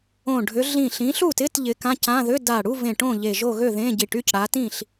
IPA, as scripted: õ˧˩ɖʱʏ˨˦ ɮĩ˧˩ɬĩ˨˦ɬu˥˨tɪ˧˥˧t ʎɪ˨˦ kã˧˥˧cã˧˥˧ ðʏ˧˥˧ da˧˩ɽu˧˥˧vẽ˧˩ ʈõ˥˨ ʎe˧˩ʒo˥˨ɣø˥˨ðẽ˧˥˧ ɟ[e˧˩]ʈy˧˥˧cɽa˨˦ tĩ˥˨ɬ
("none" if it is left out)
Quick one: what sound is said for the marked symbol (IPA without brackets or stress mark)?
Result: i˧˩